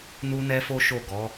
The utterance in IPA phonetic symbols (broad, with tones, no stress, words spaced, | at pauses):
nu˦nɛ˦fo˦ʃo˦˨ ɡɔ˨˦